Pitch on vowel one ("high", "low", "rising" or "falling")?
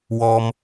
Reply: low